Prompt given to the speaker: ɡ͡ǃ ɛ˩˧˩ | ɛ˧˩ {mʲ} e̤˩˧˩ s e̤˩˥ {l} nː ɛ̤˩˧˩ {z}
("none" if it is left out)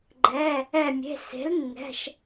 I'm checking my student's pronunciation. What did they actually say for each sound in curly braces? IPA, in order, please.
mʲ, l, ʃ

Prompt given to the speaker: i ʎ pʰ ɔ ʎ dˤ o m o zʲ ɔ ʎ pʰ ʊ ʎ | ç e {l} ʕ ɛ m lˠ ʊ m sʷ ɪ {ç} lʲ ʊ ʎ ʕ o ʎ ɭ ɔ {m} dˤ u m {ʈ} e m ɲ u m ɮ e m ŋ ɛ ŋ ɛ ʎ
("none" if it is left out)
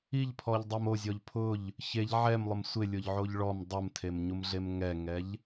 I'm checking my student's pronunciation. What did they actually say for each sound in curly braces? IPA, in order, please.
ʎ, none, m, tʰ

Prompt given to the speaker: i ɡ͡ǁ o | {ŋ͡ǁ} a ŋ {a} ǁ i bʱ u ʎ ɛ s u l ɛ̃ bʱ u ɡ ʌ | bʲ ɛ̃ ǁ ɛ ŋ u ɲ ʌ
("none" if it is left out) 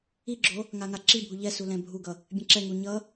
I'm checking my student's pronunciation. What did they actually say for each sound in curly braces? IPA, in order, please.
ŋ, a

